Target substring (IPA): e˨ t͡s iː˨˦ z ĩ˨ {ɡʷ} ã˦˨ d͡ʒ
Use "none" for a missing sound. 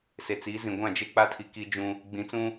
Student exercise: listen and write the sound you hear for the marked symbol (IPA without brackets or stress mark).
ɡʷ